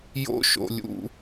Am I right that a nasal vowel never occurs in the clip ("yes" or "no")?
yes